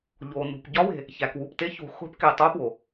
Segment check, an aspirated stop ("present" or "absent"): absent